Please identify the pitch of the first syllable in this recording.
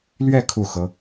falling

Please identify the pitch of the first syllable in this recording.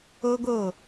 high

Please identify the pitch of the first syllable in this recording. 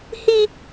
high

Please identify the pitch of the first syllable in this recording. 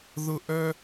high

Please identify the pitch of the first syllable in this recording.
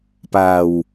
low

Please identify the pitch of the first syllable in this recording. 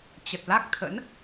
low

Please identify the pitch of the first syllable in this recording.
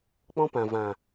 high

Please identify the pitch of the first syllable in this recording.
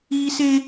high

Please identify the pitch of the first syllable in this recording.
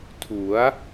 rising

